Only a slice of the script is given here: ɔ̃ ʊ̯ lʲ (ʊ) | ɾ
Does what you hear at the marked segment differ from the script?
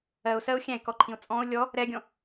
yes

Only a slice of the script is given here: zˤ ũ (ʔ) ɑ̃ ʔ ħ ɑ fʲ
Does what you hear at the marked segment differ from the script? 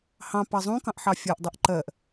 yes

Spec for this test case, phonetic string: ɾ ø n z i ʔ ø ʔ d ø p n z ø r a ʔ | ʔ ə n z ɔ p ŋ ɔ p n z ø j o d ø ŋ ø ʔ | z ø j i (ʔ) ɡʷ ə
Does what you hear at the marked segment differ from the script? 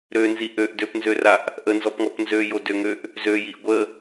no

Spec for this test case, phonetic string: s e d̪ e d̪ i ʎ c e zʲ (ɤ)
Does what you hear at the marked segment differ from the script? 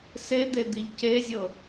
no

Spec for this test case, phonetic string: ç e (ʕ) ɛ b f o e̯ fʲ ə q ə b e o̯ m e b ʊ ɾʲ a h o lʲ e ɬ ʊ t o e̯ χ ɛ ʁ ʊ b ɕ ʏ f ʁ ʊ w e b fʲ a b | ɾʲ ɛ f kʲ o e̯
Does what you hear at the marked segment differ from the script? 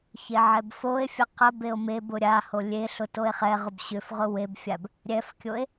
no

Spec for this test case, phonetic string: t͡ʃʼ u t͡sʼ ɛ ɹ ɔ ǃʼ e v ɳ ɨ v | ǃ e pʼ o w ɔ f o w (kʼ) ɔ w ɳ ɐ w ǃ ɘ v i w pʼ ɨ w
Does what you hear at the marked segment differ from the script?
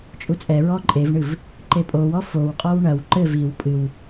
yes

